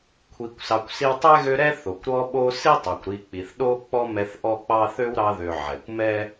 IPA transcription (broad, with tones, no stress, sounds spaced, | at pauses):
kʷʰ i˨ kʷ s ɑ˨ kʷ s i˦ w tˤ ɛ˥ ɣ ø˦ ɾ ɛ˥ θ o˩ kʷ ɾ ɔ˦ ɓ o˦ s i˥ tˤ o˩ kʷ ɾ i˨ k͡p i˩ θ ɗ o˥ k͡p ɔ˥ m ɛ˦ θ ʔ ɔ˥ k͡p ɑ˥ θ ø˥ w ɾ ɑ˦ ð ø˨ ʕ ɛ˩ kʷ m ɛ˥